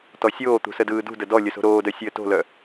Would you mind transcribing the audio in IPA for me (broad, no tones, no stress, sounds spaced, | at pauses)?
t ɔ sʲ oː t̪ ṳ s ə d ɯː d ṳ d ə d ɔ lʲ ə s o̤ ɾ oː d œ sʲ əː t o̤ l œ